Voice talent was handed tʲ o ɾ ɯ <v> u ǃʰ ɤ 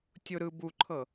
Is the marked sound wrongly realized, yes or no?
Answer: yes